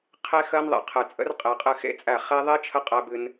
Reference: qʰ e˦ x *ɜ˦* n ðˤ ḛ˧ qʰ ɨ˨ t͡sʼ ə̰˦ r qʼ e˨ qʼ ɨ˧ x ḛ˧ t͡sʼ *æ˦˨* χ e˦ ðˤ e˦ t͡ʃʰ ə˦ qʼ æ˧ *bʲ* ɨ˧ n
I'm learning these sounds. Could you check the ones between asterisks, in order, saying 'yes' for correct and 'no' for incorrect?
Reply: yes, yes, no

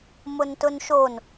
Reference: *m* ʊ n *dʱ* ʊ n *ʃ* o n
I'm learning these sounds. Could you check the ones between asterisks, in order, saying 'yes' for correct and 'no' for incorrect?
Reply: yes, no, yes

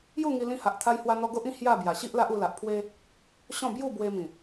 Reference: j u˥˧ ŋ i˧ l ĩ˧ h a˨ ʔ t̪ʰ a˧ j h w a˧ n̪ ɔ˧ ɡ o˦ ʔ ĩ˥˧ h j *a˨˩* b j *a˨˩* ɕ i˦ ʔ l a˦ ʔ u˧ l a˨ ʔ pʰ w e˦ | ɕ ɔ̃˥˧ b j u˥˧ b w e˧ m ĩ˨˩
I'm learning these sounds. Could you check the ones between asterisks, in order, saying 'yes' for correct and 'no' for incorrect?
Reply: no, yes

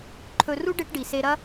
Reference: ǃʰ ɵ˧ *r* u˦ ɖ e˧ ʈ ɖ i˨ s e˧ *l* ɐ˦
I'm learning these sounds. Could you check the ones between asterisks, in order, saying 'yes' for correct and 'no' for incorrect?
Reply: yes, no

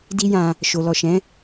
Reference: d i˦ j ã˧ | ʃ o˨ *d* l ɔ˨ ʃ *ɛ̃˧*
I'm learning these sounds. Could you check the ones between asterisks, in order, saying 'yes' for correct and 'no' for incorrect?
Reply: no, no

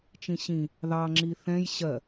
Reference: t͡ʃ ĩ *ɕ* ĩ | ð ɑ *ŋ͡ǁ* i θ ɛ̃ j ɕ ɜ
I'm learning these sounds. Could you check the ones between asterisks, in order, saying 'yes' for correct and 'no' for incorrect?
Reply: yes, yes

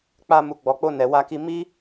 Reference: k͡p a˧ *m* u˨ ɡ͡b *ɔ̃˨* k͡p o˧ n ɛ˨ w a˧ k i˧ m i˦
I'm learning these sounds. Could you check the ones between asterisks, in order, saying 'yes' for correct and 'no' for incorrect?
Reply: yes, no

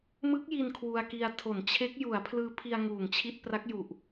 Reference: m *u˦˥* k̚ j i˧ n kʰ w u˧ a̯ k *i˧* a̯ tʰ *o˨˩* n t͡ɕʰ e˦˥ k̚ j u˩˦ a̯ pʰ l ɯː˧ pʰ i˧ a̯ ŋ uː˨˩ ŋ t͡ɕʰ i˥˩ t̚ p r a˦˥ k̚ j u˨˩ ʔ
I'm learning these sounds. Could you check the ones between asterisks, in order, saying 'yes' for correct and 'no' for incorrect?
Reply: no, yes, no

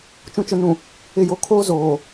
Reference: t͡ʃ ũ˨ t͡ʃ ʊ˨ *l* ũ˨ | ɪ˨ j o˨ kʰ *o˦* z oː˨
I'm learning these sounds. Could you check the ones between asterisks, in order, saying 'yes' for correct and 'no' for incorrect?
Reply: no, no

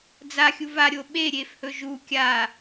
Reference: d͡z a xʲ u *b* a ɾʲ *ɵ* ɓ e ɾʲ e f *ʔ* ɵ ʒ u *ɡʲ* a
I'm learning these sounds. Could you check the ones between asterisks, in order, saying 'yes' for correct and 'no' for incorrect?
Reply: no, no, no, no

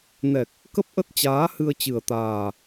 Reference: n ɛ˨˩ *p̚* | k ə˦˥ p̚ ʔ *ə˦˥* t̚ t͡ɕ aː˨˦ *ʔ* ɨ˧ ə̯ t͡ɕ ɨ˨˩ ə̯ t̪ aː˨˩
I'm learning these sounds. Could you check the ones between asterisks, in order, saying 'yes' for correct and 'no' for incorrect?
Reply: no, yes, no

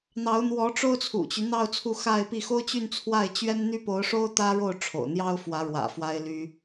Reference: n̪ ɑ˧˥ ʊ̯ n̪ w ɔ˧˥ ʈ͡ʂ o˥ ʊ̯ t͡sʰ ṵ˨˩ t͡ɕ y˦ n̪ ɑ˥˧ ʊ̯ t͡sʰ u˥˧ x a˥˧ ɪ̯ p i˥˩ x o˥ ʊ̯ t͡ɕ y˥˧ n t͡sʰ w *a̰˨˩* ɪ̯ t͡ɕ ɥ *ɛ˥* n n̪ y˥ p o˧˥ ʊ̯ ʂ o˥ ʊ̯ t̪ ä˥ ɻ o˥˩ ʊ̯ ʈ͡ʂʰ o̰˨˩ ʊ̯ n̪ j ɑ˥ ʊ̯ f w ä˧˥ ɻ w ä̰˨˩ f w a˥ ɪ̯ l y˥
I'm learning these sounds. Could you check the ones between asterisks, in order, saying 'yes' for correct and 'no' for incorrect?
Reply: no, yes

